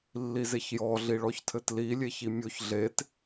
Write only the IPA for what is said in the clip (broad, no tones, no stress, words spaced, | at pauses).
lːizeçjɔ ɮiɭɔçtʰɘtli lʲeçimʲoç ɮet